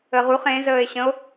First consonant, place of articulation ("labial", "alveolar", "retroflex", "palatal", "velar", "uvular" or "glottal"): uvular